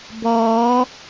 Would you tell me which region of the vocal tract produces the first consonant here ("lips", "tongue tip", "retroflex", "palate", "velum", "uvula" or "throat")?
lips